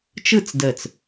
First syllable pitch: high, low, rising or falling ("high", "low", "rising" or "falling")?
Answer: falling